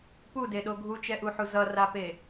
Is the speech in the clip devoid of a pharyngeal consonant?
no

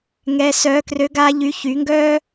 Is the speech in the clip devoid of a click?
yes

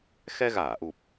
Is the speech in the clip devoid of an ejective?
yes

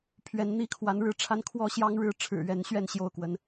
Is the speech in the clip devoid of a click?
yes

